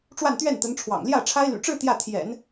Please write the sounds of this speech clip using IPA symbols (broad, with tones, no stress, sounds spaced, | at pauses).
ʈ͡ʂ w a˥˧ n t̪ ɥ ɛ˥˩ n t̪ ə˧˥ n ʈ͡ʂʰ w ɑ̰˨˩ ŋ l j ä˥˩ ʈ͡ʂʰ a˥ ɪ̯ l y̰˨˩ ʈ͡ʂ ɻ̩˥˧ t̪ j ä˥˩ t̪ʰ j ɛ̰˨˩˦ n